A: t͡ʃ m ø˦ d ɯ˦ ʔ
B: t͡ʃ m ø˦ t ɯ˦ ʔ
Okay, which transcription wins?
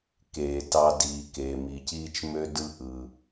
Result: A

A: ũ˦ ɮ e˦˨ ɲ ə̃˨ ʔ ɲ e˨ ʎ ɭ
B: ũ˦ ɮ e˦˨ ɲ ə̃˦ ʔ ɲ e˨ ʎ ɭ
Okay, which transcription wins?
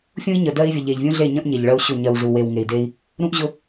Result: B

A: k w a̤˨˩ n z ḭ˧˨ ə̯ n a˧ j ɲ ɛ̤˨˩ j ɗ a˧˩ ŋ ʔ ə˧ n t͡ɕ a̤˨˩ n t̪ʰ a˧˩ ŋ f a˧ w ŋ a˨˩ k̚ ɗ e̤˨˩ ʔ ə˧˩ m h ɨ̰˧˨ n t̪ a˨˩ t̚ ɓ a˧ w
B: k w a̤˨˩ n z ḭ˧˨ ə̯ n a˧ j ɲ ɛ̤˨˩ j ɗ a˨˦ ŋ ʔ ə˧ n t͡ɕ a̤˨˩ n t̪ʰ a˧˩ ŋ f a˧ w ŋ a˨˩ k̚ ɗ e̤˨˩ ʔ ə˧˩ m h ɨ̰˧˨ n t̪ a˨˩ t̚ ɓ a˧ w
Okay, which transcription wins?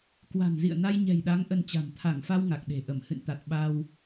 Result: B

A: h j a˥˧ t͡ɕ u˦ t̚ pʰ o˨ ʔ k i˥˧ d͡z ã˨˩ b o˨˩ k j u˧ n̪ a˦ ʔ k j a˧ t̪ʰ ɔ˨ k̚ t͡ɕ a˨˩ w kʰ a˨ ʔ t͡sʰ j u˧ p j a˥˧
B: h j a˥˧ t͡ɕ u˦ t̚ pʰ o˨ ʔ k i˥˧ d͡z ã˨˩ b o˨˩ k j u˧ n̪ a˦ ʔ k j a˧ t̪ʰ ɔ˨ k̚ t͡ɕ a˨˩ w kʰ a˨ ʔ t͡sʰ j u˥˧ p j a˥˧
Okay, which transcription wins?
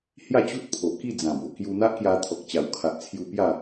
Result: A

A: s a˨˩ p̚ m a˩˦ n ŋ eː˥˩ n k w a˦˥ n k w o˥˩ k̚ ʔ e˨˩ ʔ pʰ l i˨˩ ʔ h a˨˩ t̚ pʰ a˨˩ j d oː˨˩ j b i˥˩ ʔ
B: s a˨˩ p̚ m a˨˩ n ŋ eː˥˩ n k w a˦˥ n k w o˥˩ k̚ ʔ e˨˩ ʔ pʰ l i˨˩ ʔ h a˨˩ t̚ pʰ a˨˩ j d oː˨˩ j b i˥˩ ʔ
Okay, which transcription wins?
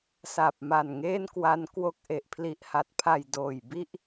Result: B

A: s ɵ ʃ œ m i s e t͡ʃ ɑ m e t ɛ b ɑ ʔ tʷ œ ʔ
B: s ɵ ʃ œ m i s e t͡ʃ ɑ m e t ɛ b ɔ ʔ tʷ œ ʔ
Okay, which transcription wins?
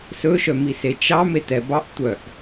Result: A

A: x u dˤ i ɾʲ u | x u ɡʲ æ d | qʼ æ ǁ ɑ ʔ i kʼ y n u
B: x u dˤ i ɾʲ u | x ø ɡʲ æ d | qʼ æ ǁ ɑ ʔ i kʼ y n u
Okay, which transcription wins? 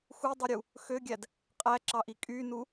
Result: B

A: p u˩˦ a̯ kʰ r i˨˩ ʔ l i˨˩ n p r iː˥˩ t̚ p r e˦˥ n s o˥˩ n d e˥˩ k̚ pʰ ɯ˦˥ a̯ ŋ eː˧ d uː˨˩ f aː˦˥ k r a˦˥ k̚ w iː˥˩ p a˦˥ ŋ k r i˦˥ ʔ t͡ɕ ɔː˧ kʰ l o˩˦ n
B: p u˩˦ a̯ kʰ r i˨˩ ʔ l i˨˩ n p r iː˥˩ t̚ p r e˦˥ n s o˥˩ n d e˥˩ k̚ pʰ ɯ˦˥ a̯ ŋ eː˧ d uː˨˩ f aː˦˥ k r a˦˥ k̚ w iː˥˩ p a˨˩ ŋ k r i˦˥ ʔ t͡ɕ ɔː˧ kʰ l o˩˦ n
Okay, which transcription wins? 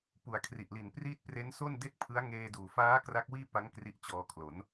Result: A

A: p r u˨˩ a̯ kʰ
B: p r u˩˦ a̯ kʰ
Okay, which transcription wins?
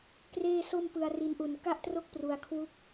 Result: B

